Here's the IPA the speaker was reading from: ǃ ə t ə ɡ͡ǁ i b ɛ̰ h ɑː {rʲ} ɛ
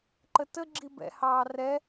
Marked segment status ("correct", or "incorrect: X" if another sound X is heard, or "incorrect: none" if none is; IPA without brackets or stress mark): incorrect: r